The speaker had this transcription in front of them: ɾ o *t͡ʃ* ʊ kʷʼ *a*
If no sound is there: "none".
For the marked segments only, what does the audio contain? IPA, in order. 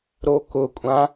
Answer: k, ã

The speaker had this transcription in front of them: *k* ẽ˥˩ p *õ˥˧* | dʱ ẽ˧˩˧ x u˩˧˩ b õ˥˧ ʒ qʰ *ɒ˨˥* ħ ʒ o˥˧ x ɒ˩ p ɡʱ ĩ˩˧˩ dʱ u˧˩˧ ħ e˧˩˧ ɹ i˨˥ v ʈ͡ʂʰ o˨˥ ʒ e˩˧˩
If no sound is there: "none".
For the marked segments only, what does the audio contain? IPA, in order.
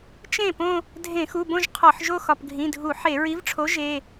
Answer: t͡ʃ, õ˥˧, ɒ˧˩˧

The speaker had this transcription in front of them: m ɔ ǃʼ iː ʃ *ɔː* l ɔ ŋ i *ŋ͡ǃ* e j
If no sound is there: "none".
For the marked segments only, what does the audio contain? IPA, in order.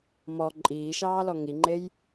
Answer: ɑː, ŋ͡ǃ

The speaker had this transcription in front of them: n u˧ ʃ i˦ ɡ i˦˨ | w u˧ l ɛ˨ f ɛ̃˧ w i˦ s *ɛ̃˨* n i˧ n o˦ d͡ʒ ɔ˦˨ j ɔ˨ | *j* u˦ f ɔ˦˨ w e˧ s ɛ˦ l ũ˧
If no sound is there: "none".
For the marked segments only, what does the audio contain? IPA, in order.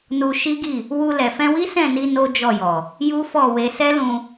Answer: ɛ̃˦˨, j

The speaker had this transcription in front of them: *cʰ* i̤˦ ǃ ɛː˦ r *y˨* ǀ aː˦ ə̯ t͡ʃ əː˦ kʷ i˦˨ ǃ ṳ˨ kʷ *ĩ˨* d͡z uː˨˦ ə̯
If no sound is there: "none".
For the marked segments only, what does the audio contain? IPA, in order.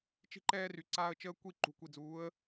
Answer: t͡ʃ, y˨, i˨

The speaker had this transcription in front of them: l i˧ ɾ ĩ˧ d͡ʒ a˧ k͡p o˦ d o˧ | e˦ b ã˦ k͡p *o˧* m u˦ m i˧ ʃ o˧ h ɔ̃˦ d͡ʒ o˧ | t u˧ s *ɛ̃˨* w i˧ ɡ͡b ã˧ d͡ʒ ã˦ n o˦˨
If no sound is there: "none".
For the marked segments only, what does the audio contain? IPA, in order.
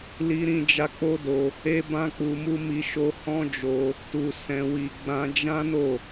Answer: u˧, ɛ̃˧

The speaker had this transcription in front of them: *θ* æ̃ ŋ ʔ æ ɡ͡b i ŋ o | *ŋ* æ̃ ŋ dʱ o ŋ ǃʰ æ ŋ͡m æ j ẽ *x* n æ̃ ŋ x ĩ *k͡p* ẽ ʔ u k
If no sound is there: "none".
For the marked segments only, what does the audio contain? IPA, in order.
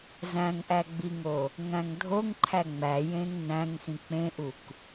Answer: z, ŋ, ŋ, k͡p

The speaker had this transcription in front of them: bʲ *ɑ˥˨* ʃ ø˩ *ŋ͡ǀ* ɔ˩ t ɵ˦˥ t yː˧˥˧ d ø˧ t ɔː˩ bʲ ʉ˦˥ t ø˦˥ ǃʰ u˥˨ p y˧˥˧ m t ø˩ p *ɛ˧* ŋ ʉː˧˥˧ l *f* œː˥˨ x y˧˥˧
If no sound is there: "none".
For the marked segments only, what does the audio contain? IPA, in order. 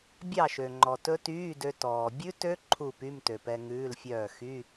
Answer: ɑ˥˨, ŋ͡ǃ, ɛ˧, fʲ

